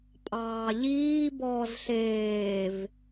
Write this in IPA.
pʼɑːʎiː bɔːzɬeːv

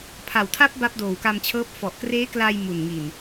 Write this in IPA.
pʰa˨˩wtʰa˦˥p̚ ba˦˥p̚doː˨˩wka˧mt͡ɕʰɤː˦˥p̚ fɔ˨˩ʔkreː˦˥kla˧j mu˨˩nŋi˨˩n

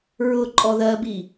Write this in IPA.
ɹʊ ǃʼɔðɜbi

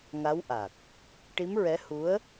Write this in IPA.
ŋa˧˥wʔa˨˩k̚ | ʈi˧˥mɹɛ˧˥ hu˧˥ə̯

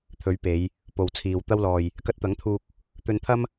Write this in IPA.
t̪ʰɵ˨˥ɥpe˨˧j | po˨wt͡sʰiː˨w t̪ɐ˧wlɔː˨j | kɐ˧t̚t̪ɐ˨˥ŋt̪ʰuː˧k̚ | t̪ɵ˧nt̪ʰɐ˥m

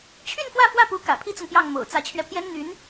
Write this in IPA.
t͡ɕʰy˥˧n fwä˥˧fwä˥˩pu˧˥ kä̰˨˩pʰi˥t͡sʊ˨ŋ pjɑ˥˩ŋmo̰˨˩ʊ̯ t͡sä˧˥t͡ɕʰɥɛ˧pʰjɛ˥nn̪y˧˥n

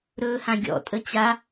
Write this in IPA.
ɾɵːhãɡʲɔ̰ tʼət͡ɕa

